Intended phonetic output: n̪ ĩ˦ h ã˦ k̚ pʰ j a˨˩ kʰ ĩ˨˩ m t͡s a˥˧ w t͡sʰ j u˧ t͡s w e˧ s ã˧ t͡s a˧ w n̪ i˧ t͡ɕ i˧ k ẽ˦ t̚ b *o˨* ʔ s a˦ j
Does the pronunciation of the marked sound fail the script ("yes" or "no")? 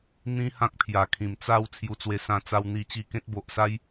no